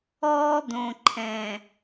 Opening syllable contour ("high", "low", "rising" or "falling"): high